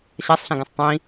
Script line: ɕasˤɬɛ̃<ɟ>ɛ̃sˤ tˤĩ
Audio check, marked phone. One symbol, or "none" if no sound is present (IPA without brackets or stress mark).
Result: ɡ